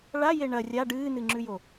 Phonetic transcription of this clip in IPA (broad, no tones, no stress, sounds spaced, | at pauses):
ɭ a j e ɳ ɐ rʲ a ɖ ɨː n ɨ ŋ͡ǁ ʉ j o